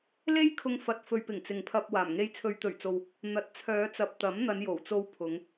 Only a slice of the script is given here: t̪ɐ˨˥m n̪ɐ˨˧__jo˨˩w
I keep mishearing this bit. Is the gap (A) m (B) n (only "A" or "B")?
B